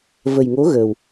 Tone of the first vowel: low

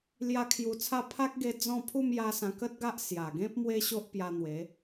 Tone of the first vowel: high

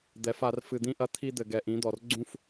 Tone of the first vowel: rising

